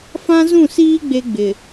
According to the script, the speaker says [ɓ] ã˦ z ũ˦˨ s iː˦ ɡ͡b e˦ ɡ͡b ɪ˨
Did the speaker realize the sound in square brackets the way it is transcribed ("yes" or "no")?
no